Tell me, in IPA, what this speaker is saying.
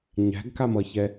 ɲæ̤ɡkamʌçɛ

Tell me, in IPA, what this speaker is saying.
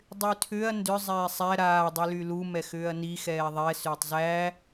dˤytʰʏɐ̯ ndʏ zˤɛːsˤæ ɾaː dˤylylu mɛxʏːɐ̯ni xɛːðˤɛ sʏːtˤzæ

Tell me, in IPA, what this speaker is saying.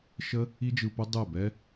ʃə˦ | i˦d͡ʒɯ˧pə˦ dˤɛ˦˨bɛ˦

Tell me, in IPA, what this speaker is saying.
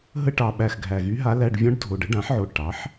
ɦə˧˥˧ʈɑ˨˩ɓæ˨˩x ɡʱæ˨˩ɣy˧˥ɦa˧˥læ˧˥˧ɖ vʲɔ̃˧˥ɖdʱo˨˩ɖ ə˧˥ɖã˩˥ħʕo˨˩ ʈɑ˩˥ħ

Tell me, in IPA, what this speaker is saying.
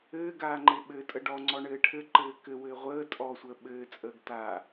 ɘːɡaːŋ͡ǃe ɓɘtʼə ɖɔŋ͡ǀɔɳɘː ʈʰɘǃɘː kɘwɘː ʁʷəː tʼɔsʷəː ɓɘːt͡sʼəːɡ taː

